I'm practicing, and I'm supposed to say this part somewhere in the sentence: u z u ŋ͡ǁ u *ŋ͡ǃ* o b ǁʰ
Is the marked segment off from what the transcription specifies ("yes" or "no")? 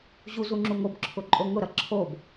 yes